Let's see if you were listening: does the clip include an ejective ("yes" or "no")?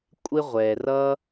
yes